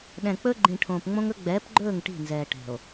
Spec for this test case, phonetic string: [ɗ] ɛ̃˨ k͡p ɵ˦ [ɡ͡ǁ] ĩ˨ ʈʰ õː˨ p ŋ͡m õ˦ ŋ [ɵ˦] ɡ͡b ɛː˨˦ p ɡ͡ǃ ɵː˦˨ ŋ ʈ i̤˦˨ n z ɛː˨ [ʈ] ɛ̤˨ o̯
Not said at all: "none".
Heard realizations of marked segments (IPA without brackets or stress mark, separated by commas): ɗ, ɡ͡ǃ, ɵ˦, ʈ